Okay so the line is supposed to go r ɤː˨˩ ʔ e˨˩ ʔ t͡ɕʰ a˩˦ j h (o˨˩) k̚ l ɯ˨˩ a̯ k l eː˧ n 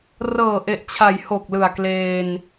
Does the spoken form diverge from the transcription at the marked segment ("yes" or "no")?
no